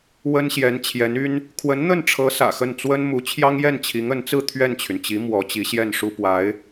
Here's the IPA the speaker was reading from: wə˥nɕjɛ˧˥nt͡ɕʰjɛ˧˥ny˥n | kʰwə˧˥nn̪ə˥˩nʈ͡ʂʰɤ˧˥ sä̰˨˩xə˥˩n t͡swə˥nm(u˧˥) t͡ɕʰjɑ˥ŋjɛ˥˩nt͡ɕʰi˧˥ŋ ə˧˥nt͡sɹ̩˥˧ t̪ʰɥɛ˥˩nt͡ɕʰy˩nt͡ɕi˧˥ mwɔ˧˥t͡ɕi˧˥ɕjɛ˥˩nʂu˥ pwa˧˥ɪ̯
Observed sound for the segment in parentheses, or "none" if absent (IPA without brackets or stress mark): u˧˥